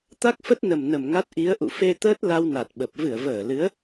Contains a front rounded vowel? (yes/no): no